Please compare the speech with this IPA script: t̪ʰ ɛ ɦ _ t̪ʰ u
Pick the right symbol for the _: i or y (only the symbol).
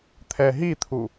i